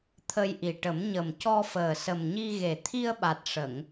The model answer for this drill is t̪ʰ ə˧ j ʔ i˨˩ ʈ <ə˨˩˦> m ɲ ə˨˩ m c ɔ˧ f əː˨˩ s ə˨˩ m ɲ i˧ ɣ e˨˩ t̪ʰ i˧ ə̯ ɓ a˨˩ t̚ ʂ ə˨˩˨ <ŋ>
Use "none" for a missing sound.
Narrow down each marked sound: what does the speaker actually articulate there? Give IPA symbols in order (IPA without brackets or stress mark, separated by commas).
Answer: ə˨˩˦, ŋ